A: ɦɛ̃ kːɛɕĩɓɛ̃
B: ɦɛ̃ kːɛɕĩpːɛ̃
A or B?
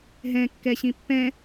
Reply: B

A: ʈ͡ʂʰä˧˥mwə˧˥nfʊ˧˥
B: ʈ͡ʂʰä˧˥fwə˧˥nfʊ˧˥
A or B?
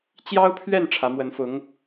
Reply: A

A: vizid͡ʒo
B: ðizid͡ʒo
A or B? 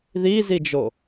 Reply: B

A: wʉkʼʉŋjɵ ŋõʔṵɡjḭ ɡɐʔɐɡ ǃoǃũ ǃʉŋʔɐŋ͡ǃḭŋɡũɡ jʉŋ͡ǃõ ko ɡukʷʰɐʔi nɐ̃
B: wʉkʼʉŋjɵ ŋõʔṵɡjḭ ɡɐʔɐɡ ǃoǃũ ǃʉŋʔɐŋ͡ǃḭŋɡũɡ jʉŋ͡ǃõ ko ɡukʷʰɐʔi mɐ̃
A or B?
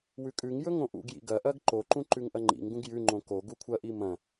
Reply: B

